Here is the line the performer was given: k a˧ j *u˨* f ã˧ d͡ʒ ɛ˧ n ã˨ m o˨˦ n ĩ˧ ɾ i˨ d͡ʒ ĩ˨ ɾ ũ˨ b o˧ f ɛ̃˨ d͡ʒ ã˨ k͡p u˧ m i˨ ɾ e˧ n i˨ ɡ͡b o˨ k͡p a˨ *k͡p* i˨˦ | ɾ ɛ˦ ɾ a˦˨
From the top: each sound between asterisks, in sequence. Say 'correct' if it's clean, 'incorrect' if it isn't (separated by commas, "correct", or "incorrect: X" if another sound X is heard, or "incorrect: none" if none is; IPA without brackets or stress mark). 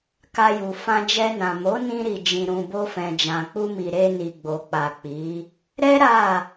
correct, correct